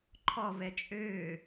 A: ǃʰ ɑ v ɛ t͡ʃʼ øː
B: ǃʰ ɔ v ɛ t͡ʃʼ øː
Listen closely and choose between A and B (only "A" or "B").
B